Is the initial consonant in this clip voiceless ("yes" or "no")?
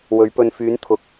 no